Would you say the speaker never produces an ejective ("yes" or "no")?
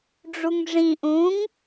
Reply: yes